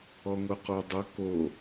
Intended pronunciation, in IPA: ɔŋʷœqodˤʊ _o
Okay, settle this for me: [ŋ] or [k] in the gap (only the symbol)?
k